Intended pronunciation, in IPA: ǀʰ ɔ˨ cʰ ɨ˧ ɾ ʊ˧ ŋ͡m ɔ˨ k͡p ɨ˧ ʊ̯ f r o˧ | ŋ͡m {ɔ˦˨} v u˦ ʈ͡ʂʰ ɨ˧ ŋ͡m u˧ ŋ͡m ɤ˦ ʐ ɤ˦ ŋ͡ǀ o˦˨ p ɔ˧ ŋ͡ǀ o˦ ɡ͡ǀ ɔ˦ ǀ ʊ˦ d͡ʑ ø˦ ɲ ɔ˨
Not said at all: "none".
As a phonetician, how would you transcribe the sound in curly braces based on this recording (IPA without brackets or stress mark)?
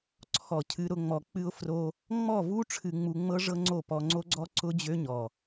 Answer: ɔ˦˨